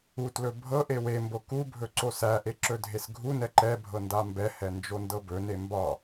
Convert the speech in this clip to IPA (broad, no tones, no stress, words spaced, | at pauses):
utlɵ bʱɤʔe wembo kubʱɵ ǀosæʔe ǁɵdʱesɡʱunɛ ǃɛ bʱɤndambɛhɛ nd͡ʒondɤbɵne mbɒ